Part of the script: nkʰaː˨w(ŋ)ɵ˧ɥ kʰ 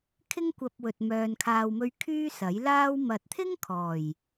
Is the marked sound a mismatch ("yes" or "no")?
yes